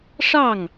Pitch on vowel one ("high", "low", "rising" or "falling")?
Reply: falling